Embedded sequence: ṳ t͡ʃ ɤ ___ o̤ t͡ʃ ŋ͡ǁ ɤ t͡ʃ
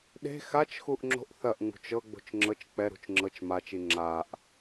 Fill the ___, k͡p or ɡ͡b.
ɡ͡b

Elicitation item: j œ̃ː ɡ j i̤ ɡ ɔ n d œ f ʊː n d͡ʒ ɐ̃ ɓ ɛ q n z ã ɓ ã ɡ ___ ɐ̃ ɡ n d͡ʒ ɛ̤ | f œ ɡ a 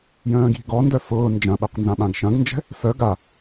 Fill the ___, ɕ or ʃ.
ʃ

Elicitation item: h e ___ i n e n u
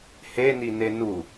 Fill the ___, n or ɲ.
n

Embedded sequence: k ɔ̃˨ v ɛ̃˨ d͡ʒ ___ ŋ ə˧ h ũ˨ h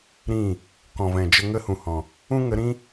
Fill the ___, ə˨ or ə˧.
ə˧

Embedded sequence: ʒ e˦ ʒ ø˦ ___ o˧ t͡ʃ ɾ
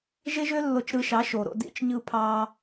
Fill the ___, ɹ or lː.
lː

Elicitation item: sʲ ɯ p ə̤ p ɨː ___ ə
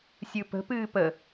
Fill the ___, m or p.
p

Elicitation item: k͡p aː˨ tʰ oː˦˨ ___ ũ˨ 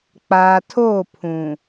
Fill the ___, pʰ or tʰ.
pʰ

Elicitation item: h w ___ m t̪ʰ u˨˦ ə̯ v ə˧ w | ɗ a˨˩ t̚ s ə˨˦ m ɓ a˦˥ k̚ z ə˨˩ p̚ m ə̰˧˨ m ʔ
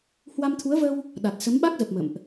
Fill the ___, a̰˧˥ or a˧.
a˧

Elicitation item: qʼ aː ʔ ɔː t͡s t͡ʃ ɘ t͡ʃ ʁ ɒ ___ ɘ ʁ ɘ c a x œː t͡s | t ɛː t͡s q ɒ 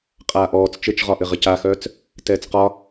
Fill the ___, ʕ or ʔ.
ʔ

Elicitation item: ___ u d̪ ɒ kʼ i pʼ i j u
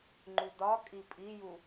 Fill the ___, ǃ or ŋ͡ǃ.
ŋ͡ǃ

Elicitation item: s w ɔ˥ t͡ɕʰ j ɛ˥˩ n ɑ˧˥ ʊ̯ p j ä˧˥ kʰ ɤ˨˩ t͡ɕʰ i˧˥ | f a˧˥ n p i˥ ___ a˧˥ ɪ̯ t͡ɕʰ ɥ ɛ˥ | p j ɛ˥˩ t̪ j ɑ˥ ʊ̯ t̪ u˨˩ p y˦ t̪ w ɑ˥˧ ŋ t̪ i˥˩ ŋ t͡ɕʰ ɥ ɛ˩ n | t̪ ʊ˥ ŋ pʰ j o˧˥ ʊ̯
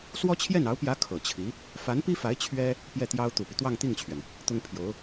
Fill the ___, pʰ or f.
f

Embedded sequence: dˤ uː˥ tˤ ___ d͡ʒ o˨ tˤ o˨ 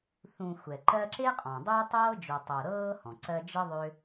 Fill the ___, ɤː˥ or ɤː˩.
ɤː˥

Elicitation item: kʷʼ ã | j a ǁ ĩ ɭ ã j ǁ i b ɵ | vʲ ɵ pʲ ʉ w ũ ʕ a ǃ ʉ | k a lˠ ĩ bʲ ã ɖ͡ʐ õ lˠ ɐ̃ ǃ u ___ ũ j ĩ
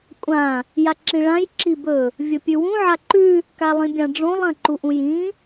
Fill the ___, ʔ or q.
ʔ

